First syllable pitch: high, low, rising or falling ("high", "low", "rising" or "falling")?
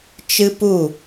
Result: high